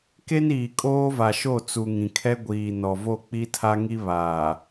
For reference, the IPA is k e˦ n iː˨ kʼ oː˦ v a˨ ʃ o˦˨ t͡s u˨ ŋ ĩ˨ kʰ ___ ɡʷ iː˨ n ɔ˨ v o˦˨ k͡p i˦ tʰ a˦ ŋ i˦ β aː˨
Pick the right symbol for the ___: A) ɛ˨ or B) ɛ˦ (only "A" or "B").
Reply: B